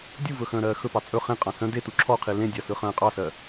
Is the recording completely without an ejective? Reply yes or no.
no